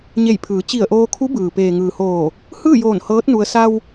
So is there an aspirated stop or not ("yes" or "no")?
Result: yes